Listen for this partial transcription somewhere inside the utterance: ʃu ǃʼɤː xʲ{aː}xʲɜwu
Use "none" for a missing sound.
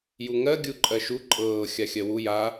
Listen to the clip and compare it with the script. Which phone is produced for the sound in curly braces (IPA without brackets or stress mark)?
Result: a